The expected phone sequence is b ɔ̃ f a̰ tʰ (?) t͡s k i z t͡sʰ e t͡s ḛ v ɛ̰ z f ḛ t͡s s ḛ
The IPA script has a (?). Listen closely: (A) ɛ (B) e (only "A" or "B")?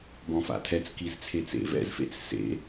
A